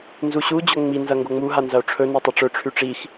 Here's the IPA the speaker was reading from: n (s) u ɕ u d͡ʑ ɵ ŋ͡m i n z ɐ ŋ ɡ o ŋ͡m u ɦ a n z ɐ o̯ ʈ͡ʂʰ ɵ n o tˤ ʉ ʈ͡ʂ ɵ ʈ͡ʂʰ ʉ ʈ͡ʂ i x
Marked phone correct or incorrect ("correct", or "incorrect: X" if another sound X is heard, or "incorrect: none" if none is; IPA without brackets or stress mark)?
incorrect: z